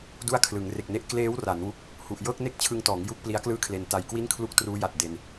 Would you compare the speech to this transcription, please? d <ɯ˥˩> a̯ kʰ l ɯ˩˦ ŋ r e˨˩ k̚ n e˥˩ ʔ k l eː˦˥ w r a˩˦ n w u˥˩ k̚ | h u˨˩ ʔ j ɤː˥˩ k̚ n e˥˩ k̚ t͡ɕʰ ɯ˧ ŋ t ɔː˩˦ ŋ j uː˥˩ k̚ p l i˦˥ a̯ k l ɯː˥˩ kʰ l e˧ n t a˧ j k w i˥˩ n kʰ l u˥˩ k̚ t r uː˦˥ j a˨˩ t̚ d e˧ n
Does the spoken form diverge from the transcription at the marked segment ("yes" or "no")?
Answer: yes